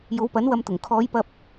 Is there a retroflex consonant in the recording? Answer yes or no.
no